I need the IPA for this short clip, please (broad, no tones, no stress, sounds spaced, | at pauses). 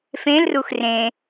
f ẽ l r u x r ẽ